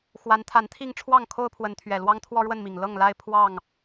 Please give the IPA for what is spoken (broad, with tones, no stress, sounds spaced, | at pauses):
x w a˨˦ n t̪ʰ a˨˦ n t̪ʰ i˥˨ ŋ ʈ͡ʂʰ w ɑ˥˨ ŋ kʰ o˦ ʊ̯ pʰ w ə˨˦ n t̪ʰ ɥ ɛ˨˩ l w ɑ˦ ŋ t̪ʰ w ɔ˦ ɻ w ə˥˨ n m i˨˩ ŋ l ɤ˥˨ ŋ l a˦ ɪ̯ pʰ w ɑ˥˨ ŋ